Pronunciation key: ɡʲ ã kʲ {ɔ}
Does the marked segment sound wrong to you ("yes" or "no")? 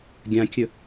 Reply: yes